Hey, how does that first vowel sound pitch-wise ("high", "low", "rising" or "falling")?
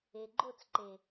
low